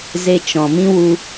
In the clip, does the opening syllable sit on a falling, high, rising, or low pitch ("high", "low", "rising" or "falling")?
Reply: high